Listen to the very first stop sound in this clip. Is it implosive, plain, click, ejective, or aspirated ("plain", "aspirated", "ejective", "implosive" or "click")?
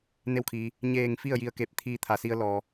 aspirated